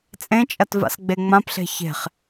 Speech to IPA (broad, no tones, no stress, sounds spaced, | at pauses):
t͡sʼ ẽ t͡ʃʼ ɐ t v a̰ s ɡ͡b e ŋ͡m ã p ɬ e̤ ç e̤ χ